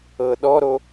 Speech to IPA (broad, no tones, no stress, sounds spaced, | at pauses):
ɤ ɗ ɔ ɾ o